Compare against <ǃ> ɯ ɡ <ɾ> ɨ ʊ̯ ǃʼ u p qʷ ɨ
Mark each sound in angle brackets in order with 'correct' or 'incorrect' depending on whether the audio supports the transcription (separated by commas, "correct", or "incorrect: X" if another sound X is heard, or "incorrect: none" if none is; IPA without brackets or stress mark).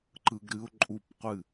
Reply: correct, correct